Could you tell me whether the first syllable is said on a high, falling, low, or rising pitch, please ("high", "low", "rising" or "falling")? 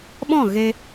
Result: falling